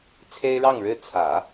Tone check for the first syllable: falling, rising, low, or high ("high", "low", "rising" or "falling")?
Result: high